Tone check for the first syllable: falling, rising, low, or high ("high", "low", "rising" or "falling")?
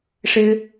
high